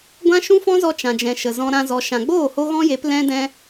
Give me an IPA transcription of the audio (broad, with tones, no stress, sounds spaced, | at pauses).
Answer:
ɡʷ ã˦ ʃ ũ˦ f ɔ̃˦ z ɔ˧ t͡ʃ ã˨ d͡ʒ ɛ̃˨ ʃ ə˨ z ɔ̃˧ ɾ ã˧ z ɔ˨ ʃ ã˨ ɡ͡b oː˦˨ h o˦ ɣ ɔ̃˦ j e˨˦ p l ɛ̃˦ d ɛ̃˦